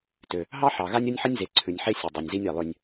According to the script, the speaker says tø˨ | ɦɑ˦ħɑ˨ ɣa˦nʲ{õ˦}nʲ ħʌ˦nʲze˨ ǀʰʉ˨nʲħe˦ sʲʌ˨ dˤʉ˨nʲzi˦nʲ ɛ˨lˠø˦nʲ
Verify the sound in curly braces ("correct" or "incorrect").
incorrect